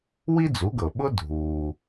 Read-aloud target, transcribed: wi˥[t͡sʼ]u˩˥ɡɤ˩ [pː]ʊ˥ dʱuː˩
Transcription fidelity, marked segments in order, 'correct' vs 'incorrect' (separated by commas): incorrect, incorrect